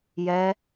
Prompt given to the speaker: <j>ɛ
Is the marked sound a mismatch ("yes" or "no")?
no